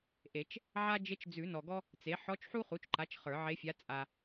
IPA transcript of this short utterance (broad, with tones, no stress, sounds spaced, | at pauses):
ʔ e˨˩˦ t͡ʃ | ʕ a˥ d͡ʒ e˧˥ t͡ʃ d͡z ʉ˨˩˦ n ɔ˨ ɡ ɔ˥ | t͡s e˩˥ ħ ɔ˧˥ t͡ʃ ħ u˥ χ u˩˥ t͡ʃ ǃ a˩˥ t͡ʃ χ ə˞˨˩˦ ʕ e˧˥ fʲ a˧˥ t͡sʼ a˨